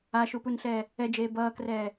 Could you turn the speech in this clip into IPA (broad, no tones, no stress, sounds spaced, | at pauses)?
a ʃ u p u n ɬ ɛː | ɛ d͡ʒ eː b ʌː k r ɛː